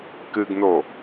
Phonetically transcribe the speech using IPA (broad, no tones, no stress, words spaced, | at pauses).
kɨɡno